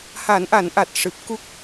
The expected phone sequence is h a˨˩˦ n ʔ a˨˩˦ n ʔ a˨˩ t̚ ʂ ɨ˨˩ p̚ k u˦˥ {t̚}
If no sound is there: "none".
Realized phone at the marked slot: k̚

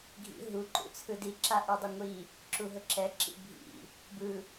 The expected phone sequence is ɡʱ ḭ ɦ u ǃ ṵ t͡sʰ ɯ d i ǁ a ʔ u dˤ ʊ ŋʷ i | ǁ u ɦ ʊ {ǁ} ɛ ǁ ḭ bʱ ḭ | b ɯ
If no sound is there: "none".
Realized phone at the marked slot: ǁ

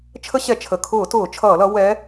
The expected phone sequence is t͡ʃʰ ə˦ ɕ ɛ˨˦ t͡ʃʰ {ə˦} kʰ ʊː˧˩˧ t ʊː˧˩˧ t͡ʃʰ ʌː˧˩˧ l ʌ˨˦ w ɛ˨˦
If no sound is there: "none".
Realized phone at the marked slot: ə˩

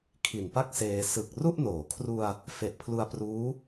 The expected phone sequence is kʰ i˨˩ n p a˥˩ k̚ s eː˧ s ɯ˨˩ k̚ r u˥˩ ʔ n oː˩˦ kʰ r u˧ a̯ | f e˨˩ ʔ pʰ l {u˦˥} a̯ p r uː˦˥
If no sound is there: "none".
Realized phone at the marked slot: u˧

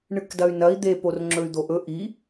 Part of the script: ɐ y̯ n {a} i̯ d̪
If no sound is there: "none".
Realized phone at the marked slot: ɐ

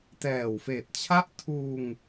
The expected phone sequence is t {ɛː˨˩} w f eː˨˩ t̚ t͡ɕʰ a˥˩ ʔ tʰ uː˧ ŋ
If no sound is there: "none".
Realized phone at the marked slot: ɛː˨˩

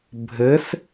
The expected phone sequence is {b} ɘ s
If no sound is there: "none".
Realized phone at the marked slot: bʱ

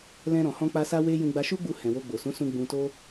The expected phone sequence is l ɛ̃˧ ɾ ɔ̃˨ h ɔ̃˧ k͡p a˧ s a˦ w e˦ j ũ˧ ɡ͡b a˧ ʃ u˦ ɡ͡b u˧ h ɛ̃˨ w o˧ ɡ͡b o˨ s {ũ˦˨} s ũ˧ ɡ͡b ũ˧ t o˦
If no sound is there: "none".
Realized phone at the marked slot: ũ˨˦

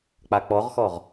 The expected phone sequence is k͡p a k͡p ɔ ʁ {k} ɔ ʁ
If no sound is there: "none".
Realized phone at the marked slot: x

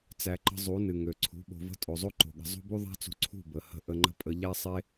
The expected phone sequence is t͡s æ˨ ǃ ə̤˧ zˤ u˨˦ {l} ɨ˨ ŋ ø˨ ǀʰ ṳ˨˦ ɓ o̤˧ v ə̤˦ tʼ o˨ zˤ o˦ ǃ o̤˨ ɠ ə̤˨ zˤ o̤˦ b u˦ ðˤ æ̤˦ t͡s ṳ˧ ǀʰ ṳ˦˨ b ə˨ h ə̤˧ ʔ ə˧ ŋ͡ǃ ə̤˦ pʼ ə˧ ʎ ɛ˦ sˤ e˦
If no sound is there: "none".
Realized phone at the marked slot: n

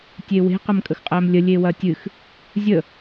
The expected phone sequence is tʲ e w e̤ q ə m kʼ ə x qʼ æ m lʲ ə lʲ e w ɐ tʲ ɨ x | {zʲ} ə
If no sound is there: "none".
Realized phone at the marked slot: zʲ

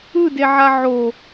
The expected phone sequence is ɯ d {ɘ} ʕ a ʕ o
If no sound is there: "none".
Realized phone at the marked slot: e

